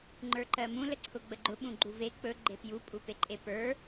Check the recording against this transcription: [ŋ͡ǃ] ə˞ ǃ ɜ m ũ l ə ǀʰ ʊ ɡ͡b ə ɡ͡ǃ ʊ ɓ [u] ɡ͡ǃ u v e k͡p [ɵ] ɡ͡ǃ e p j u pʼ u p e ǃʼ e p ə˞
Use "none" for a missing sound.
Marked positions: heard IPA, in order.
ŋ͡ǃ, ũ, ɵ

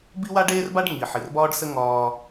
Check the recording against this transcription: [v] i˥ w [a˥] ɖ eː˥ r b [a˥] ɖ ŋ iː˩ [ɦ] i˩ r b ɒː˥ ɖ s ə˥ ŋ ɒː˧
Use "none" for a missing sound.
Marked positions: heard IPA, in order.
b, a˥, a˥, ħ

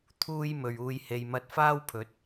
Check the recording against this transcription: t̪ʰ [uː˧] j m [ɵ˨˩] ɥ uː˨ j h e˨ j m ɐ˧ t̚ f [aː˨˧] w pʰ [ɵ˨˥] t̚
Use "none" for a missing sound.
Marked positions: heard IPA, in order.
uː˥, ɵ˨, aː˥, ɵ˨˥

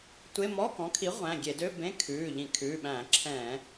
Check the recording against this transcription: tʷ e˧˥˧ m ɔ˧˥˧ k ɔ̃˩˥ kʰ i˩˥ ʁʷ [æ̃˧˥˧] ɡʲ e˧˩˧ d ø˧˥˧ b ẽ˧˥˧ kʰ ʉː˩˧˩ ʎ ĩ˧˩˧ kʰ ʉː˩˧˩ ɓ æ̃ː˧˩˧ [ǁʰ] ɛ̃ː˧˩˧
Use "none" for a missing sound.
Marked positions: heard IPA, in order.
æ̃˩˧˩, ǁʰ

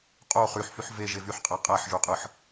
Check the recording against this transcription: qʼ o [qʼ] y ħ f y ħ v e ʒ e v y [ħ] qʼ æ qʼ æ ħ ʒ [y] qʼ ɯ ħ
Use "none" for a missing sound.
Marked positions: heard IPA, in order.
χ, ħ, y

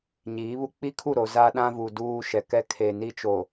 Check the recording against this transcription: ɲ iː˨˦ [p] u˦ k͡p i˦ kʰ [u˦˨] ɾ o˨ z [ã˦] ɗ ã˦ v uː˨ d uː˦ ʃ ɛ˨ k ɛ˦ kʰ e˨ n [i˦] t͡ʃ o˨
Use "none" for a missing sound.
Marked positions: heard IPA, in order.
β, u˦˨, a˦, i˦

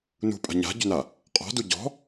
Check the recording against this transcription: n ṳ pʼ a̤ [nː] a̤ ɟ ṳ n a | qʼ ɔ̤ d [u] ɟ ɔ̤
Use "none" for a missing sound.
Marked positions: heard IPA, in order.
ɲ, u

